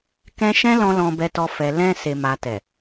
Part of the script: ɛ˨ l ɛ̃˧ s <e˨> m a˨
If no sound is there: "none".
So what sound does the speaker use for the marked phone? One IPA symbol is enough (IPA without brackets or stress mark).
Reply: e˨